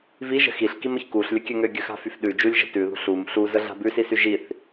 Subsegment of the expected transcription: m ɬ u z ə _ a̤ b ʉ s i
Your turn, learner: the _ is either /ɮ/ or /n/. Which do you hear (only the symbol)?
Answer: ɮ